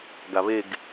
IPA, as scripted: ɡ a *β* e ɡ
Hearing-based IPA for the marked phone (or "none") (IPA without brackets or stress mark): β